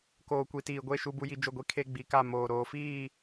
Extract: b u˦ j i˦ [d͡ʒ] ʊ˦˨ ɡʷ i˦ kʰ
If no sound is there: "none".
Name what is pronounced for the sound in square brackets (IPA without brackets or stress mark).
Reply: d͡ʒ